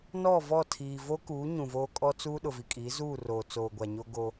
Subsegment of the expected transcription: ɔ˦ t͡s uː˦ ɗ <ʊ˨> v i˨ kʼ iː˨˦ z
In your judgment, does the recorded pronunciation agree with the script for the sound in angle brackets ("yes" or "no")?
yes